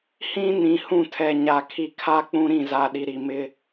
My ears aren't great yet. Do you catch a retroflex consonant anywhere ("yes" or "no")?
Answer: no